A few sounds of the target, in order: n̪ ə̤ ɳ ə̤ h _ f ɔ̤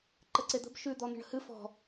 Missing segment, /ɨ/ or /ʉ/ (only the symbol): ɨ